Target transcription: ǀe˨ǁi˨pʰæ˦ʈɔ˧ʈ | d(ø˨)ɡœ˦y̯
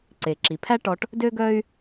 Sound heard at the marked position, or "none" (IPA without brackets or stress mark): ø˦